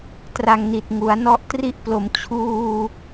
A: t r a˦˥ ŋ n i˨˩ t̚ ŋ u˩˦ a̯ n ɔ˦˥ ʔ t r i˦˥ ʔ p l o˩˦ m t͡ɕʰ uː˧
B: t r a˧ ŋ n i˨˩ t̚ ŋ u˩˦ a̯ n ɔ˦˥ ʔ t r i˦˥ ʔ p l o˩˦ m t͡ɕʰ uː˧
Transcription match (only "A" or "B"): B